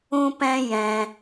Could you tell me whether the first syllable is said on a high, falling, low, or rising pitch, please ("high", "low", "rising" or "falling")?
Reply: high